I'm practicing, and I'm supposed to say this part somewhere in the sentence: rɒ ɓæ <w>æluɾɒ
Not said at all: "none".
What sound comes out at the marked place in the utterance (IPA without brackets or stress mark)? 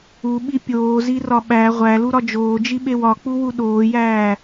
ʁʷ